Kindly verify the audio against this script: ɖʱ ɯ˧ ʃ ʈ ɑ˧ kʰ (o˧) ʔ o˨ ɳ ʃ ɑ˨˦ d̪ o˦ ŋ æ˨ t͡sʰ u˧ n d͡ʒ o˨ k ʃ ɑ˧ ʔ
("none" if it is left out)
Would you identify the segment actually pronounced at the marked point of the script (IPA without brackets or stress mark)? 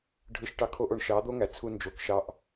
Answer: o˧